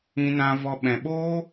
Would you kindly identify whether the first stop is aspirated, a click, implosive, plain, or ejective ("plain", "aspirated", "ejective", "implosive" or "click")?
implosive